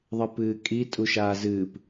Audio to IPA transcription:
ðˤɨpɨːkʼi tʼuʃaːzɨːp

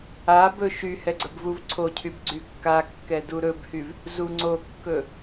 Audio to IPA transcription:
a bɵʃyhɛ ɡ͡ǀəbvuvǀʰocʰyb ɡ͡ǀykːakːɛ duɾɵbhyv | zuŋ͡ǀokːɵ

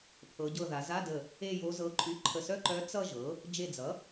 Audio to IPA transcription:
pʰɤ˩˧ɟɤ˧˩ ða˩˧za˧˥˧də˧˩ | e˥˧jo˧˥zɤ˧˥ǃʼy˧˥˧ ǃʰə˧˩sœ˥˧ǃœ˧˥ t͡sʌ˥˧ʒɤ˩˥ | d͡ʒe˧˩d͡zʌ˩˥

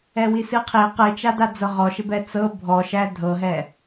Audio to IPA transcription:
ɛwisɨqʰi qɨt͡ʃada d͡zɤʁɔʃɪbɛ t͡sɤ bʱɔʃæ dʱɤɦɛ

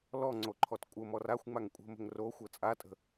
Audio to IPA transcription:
lɔŋ͡ǀo ǃʰɔtkʷʼəmɔr axʷŋ͡maŋ kʷʼə̤mə̤ŋ ro xʷɤt͡sʼatʼə̤

